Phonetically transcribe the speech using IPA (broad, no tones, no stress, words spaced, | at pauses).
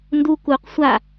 ndu kuq sʷa